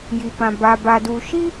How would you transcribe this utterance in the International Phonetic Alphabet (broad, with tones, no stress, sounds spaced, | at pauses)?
j i˨ p ã˨ b a˨ b a˨ d u˨ ʃ i˦